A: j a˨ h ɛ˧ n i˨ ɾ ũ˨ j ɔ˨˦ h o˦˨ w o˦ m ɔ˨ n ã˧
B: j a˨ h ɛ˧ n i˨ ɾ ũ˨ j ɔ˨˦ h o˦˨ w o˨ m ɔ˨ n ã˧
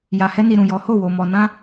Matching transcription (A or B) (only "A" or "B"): B